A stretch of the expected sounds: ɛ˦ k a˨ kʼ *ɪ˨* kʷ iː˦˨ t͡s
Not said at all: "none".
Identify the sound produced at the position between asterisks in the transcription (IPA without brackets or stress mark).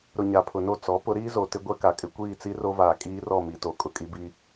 ɪ˦